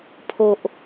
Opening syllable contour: low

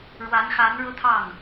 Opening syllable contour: rising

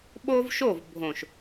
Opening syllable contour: high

